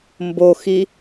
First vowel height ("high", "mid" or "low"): mid